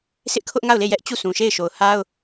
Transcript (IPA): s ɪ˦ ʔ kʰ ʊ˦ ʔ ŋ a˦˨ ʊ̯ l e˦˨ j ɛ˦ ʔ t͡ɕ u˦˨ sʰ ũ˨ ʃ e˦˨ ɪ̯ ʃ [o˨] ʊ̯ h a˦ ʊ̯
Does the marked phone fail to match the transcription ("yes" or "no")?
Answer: no